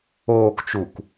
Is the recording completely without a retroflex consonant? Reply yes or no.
yes